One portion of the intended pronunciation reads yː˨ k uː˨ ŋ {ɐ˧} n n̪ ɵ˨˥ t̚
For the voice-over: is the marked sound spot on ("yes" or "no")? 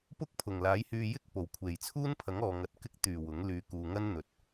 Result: no